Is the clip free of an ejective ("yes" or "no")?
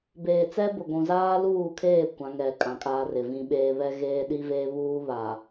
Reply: no